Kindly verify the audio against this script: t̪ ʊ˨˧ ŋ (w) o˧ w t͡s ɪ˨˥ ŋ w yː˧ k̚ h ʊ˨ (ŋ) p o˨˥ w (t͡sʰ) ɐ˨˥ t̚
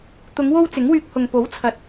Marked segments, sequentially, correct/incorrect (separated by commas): correct, correct, correct